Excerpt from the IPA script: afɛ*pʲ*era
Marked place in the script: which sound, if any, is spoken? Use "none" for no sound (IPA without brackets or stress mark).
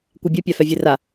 vʲ